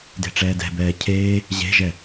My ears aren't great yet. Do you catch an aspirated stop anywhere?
yes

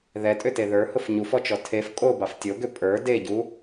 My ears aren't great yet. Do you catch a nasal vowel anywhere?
no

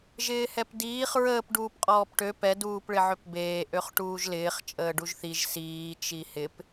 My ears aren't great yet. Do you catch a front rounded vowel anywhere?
yes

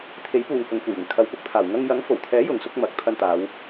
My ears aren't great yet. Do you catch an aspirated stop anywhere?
yes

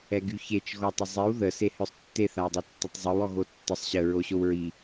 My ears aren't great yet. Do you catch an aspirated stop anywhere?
no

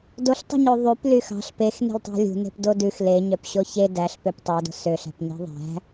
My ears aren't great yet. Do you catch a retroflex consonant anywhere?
no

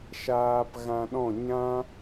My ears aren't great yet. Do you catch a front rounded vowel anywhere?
no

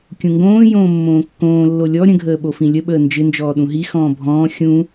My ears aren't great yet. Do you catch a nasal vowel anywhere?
yes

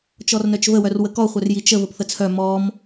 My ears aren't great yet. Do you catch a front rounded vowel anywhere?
yes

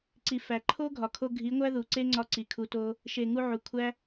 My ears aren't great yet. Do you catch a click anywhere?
yes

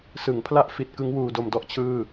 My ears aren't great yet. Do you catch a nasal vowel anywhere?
no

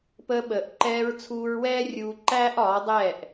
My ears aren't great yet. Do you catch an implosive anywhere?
yes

